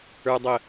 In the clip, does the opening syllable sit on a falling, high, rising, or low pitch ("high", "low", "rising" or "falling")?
low